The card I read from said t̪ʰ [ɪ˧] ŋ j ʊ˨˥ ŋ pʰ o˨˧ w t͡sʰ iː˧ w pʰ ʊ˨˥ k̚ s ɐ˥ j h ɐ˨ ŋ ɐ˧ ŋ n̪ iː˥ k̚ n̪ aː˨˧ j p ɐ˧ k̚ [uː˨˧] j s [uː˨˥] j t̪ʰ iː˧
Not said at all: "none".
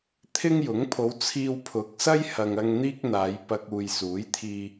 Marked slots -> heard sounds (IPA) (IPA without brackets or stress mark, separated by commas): ɪ˥, uː˨, uː˨˥